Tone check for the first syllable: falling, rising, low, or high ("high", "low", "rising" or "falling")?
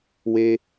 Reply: low